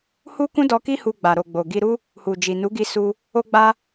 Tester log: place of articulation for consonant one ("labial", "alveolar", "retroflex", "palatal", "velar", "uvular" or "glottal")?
glottal